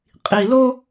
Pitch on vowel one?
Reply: low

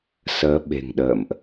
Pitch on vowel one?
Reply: rising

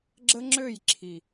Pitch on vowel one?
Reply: high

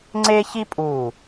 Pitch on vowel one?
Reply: high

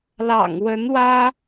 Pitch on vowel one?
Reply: low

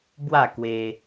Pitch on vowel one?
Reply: falling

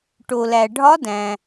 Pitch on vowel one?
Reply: low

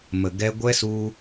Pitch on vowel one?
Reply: low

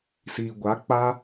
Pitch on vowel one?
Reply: low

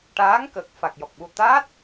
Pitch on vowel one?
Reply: rising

